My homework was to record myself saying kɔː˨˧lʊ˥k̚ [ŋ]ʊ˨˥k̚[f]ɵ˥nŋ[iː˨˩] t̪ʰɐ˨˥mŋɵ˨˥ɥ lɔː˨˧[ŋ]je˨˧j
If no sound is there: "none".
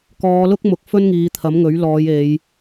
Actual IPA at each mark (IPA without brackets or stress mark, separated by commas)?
m, f, iː˨˧, none